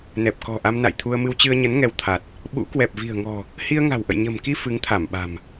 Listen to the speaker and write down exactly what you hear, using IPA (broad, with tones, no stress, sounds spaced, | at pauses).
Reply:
n ɛ˨˩ p̚ k ɔ̤˨˩ ʔ a˧ m n a̰˧˨ j t̪ʰ u˧ ə̯ m ɨ˧ w t͡ɕ ɨ˧ ə̯ ɲ ə˨˦ n ŋ ɛ˧ w t̪ʰ a˨˩ t̚ | ɓ ṵ˧˥ k w ɛ˨˩ p̚ v i̤˨˩ ə̯ ŋ ɔ̤˨˩ | h i˧ ə̯ ŋ a̤˨˩ w ʔ ə̰˧˨ j ɲ ə̤˨˩ m k i˧ f ɨ˨˦ ŋ t̪ʰ a˧˩ m ɓ a̤˨˩ m